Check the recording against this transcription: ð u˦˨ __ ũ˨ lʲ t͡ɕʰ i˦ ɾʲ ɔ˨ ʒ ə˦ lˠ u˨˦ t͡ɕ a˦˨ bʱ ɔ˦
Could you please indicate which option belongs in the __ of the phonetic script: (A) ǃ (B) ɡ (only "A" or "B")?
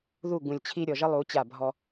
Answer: B